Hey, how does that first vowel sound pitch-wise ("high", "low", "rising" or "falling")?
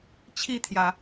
falling